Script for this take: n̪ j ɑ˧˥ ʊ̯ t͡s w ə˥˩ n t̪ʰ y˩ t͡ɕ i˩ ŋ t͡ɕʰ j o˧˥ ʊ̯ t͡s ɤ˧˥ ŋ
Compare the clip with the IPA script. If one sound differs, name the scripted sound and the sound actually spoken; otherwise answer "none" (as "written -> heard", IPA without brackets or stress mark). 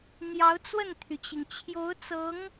none